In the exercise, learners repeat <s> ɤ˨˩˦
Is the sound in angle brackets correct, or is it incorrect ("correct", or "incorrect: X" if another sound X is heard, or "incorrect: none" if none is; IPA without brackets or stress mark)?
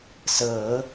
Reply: correct